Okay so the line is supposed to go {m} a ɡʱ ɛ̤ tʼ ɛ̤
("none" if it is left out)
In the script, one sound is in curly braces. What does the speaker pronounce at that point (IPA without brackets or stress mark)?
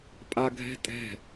pʼ